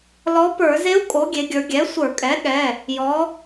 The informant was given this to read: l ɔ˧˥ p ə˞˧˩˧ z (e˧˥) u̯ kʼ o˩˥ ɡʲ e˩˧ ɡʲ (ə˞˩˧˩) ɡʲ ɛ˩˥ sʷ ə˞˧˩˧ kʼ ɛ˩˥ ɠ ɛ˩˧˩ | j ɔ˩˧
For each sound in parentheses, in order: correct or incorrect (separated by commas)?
correct, incorrect